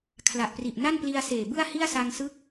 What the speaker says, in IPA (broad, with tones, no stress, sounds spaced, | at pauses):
kʰ l a˨˩ ʔ p r i˨˩ ʔ n a˥˩ n p l i˧ a̯ s eː˨˩ b ɯ˥˩ a̯ h i˥˩ a̯ s a˧ ŋ s ɯ˦˥ k̚